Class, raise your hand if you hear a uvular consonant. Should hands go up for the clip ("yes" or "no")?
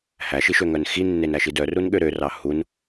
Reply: no